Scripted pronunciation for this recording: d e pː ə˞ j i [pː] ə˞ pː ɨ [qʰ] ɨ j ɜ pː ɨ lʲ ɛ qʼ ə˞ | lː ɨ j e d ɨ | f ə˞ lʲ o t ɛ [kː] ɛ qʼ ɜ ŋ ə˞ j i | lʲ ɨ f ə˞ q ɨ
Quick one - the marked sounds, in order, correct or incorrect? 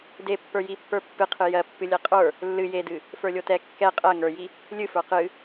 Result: correct, correct, correct

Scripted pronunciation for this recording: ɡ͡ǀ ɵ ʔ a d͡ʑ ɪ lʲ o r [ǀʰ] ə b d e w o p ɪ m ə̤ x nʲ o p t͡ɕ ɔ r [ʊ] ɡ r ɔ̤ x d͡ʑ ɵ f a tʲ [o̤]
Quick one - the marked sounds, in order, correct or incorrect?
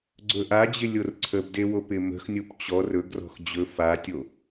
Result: correct, incorrect, incorrect

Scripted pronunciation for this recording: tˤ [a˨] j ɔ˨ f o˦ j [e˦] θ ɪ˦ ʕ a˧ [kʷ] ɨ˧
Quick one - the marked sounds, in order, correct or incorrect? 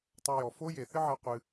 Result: incorrect, incorrect, incorrect

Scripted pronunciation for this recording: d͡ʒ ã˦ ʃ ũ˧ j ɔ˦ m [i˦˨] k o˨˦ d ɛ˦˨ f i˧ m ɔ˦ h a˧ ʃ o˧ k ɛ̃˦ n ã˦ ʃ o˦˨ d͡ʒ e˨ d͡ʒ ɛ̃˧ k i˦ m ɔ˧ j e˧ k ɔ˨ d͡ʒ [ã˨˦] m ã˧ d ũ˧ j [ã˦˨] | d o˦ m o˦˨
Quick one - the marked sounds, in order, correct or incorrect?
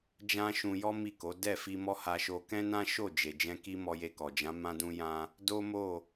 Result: correct, correct, incorrect

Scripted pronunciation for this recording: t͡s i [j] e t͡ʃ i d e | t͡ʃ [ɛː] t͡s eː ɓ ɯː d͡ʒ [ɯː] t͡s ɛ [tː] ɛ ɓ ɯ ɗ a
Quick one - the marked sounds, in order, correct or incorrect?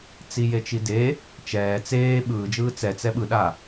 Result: correct, correct, correct, incorrect

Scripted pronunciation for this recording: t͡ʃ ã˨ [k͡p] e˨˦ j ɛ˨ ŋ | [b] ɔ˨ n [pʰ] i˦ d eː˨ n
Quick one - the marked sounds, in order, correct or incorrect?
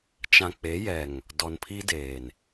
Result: correct, incorrect, correct

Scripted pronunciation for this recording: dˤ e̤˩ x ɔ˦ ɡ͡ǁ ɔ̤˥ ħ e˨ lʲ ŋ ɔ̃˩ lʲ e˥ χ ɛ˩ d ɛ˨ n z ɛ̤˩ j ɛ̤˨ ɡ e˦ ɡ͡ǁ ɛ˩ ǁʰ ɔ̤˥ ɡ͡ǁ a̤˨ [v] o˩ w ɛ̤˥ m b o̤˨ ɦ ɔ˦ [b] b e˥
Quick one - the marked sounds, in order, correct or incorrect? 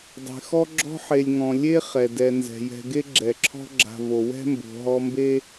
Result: correct, incorrect

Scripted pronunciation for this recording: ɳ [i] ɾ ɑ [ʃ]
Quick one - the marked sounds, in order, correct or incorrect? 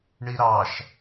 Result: correct, correct

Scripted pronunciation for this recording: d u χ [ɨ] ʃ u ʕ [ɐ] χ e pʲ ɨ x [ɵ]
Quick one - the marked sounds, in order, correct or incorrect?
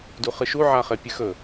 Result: correct, incorrect, correct

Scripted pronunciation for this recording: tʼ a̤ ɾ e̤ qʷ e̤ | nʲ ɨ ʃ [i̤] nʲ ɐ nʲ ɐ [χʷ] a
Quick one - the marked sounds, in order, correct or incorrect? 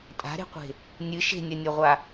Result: incorrect, incorrect

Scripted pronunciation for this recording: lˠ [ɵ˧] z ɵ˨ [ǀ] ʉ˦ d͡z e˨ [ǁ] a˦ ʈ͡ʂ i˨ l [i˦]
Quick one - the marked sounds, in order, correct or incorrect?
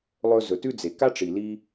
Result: correct, incorrect, incorrect, incorrect

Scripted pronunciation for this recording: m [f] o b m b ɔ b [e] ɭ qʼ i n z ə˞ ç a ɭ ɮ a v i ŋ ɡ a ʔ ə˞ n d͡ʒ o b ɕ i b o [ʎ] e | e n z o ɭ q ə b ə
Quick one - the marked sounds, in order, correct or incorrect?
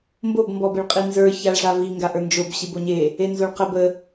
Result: incorrect, correct, incorrect

